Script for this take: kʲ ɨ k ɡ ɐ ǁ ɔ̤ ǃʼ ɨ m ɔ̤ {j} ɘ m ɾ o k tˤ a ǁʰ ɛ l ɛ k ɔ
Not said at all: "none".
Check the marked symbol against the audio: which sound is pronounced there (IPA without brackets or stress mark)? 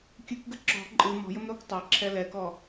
j